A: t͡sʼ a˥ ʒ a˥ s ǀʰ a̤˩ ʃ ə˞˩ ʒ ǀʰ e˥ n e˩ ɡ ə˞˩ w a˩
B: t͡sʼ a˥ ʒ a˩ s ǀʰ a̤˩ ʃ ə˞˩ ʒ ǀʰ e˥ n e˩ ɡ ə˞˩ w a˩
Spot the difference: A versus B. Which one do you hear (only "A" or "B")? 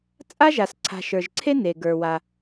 B